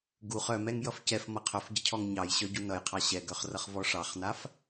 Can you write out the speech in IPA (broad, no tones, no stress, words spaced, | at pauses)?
ɡuχ œmɛŋ jʌfcɛf mʌqʰœfɟəcʰɔŋ ɲɑjɕœ ɟunʌjqʰɑ ɕɛɡœχrʌχ vɔʂɑχnaf